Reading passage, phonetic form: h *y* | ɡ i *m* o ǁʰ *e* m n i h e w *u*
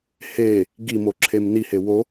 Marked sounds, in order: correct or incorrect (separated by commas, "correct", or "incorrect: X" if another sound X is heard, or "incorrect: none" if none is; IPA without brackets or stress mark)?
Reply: incorrect: e, correct, correct, incorrect: o